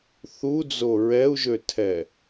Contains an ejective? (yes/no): no